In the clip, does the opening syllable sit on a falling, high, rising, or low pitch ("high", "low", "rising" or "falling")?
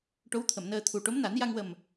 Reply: rising